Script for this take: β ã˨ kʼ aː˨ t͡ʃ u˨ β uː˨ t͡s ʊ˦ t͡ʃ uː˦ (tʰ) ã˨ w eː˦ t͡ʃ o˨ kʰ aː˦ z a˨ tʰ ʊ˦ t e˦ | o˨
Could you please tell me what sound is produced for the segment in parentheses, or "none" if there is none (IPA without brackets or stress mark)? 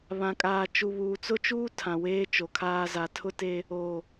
tʰ